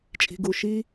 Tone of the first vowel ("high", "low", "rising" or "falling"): low